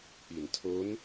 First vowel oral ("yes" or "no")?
yes